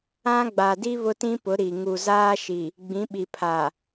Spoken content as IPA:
ã˦ ɡ͡b a˨ d i˦ β ʊ˦ t ĩ˦ p ʊ˨˦ ɾ i˨ ŋ u˨ z aː˦ ʃ i˨ | ɡ͡b ĩ˨˦ ɓ i˨ pʰ aː˨

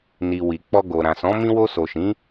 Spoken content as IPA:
n i˨ w i˨ k͡p ɔ˧ ɡ o˨ ɾ ã˨ s ɔ̃˨˦ m ĩ˧ w o˧ s o˨ ʃ ĩ˨˦

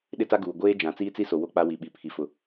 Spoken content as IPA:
ɗ ɪ˦ t a˦ ɡ uː˨ ɡʷ eː˦ d͡ʒ ã˨˦ t͡s iː˦ t͡s i˦ s o˨ w o˦ k͡p a˦ w i˨ ɓ i˨ pʰ i˨ f ʊ˨

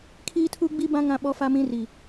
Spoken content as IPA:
kʰ iː˦ tʰ u˦ ɡ͡b i˦ b ã˦ ŋ ã˦ ɓ ɔ˦ f a˦ m ĩ˦ r i˨

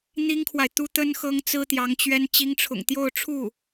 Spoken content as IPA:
n̪ i˥ ŋ kʰ w a˨ ɪ̯ t̪ u˥ t̪ ə˥ n x ɤ˥ ŋ t͡s ɹ̩˥ t̪ j ɑ˧˥ ŋ t͡ɕ ɥ ɛ˥ n t͡ɕ i˧˥ ŋ ʈ͡ʂʰ ʊ̰˨˩ ŋ t̪ j o˥˧ ʊ̯ ʈ͡ʂʰ u˥˩

